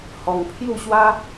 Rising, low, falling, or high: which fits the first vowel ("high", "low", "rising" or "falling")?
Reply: low